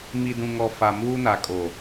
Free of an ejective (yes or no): no